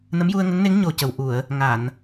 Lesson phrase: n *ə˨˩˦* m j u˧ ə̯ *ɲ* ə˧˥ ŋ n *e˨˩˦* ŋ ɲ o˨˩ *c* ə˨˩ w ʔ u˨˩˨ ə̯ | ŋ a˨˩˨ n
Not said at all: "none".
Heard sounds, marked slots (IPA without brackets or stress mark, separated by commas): ə˧˥, ŋ, e˧˥, c